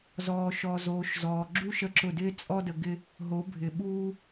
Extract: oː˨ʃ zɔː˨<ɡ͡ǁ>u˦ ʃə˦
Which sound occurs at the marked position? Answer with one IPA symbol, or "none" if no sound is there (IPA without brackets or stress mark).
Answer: ɡ͡ǁ